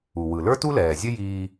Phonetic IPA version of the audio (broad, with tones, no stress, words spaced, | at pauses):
u˩wɯ˩ lə˞˥tu˥lɛː˩zʲə˥ jiː˧